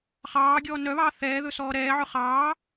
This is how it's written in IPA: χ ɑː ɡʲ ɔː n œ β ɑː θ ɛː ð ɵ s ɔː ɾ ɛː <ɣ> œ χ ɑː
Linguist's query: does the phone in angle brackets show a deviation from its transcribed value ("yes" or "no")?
yes